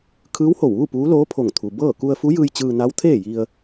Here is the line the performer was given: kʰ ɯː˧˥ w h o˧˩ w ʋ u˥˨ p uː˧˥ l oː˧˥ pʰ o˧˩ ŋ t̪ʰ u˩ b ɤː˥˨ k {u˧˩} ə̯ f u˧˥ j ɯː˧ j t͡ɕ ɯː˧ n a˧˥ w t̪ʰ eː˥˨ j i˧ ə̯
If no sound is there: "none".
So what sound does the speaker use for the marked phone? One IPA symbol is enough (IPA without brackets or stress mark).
u˧